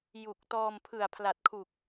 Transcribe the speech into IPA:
j u˨˩ k̚ t ɔː˧ m pʰ ɯ˨˩ a̯ pʰ l a˨˩ t̚ kʰ u˨˩ k̚

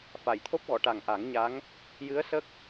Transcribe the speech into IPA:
f a˨˩˨ j t̪ʰ o˦˥ p̚ ɣ ɔ˨˩˨ ʈ a˨˩ ŋ ʔ a˨˩˦ ŋ ɲ a˧˥ ŋ | j ɨ˧˥ ə̯ s ə˦˥ k̚

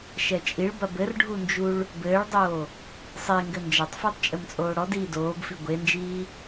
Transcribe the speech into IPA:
ʃ ɛ t͡ʃʼ i ɭ b ɐ b ɘ r ɖʱ u n d͡ʒ u ɭ | b ɘː ɭ dˤ oː | sˤ e ŋ ɡ ɘ n d͡ʒ ɐ tˤ f iː tˤ t͡ʃʼ ɘ m t͡sʼ oː ɽ ɔ d iː d oː b f i ɡʷ e n d͡ʒ iː

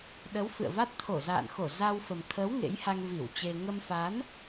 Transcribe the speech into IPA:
ɗ ə˨˦ w f ɨ̰˧˨ ə̯ v a˦˥ t̚ t̪ʰ o˧˩ z a̰ː˧˨ n x o˧˩ z a˧ w f ə˨˩ m t̪ʰ əː˨˦ w ŋ ḛ˧˥ j h a˧ ŋ v i˧˩ w t͡ɕ e˧ ŋ ə˧ m f a˨˦ n

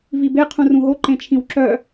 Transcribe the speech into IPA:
v i b e qʰ ũ r ũ ɦ o ǃ ẽ t͡ʃʰ ĩ w ǁ œ

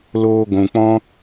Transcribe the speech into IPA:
l oː˧ ɡʷ ũ˨ k͡p ɔ̃˦

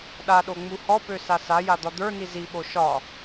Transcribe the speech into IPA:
ɗ a ɗ o ŋ͡m u h ɔ p ø s a s a j a d̪ ɒ d̪ ə˞ n i z i ɓ o ʃ ɒ

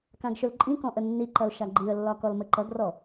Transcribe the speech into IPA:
k ã ɡ ʃ ɵ l ǃʼ ĩ k ɔ̃ ʔ ə nː i ǃ ɐ ʊ̯ ʃ a ɡ͡ǃ i ə̯ lː ɒ k ɔ l m ə ǃ ʌ ɡ r ɔ

